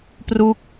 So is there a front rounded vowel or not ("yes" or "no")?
no